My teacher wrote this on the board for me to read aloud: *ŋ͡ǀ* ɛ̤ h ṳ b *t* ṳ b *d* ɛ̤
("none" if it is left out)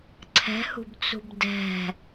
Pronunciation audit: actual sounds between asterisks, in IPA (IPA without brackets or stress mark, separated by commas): ǀʰ, t͡s, d